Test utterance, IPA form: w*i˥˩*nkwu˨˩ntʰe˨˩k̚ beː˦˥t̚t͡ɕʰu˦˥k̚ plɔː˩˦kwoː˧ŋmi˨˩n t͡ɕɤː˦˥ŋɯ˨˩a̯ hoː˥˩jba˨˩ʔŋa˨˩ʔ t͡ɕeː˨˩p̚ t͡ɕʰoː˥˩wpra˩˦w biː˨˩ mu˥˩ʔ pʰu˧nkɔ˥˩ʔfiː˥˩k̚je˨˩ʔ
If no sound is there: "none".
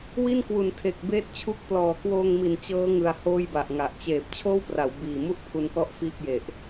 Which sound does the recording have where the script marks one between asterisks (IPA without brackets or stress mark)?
i˥˩